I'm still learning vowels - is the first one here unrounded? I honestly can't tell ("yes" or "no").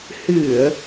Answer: yes